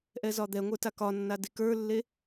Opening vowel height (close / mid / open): mid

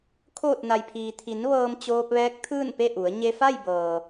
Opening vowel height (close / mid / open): mid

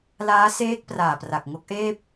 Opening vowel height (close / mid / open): open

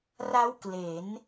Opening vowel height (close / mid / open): open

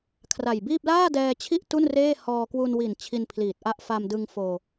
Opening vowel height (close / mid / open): open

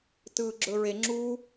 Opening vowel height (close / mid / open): close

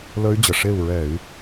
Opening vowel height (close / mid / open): mid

